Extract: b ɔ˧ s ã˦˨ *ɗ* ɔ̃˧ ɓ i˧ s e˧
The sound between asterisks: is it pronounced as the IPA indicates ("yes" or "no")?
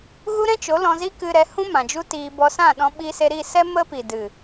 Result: yes